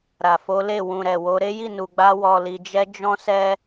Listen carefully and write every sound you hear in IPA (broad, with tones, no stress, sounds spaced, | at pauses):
ɾ a˨ f o˨˦ l e˦˨ w ũ˨ ɾ ɛ˨ w o˨˦ ɾ e˦ j i˦˨ n u˨ ɡ͡b a˧ w ɔ˨ l i˨ d͡ʒ ɛ˧ d͡ʒ ɔ̃˦ s ɛ˦